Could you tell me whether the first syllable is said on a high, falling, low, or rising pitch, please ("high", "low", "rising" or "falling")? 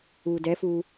low